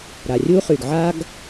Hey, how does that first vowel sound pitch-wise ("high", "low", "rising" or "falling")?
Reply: low